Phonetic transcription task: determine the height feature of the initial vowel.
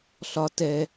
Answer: low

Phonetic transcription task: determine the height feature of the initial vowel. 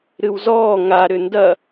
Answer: high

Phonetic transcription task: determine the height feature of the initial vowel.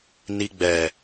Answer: high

